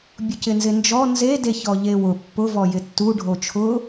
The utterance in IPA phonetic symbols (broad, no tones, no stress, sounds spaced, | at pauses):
bʲ ʊ c ɪ n z ɪ n d͡ʒ ɔ n z e d e ç ɔ ʎ e w ʊ pː ʊ v ɔ j ɪ tː u ɖʱ o t͡ʃʰ ʊ